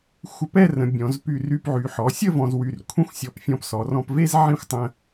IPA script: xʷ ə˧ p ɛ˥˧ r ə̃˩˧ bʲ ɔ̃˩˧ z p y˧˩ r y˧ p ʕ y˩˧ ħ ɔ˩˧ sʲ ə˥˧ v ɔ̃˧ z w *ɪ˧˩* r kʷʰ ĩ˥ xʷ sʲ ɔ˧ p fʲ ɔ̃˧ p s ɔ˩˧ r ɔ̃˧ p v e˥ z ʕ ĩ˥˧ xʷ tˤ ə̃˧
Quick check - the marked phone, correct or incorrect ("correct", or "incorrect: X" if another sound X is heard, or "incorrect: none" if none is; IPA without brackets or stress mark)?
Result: incorrect: y˧˩